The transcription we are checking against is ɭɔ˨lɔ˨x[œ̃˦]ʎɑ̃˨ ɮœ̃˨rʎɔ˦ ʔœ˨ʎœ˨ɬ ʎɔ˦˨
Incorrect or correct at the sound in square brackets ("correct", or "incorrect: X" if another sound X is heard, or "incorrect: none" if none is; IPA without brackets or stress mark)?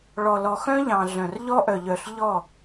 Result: correct